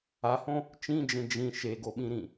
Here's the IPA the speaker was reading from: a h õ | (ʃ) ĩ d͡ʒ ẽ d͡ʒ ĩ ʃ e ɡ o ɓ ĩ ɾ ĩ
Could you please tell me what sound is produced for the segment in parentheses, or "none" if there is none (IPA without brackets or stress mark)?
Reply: t͡ʃ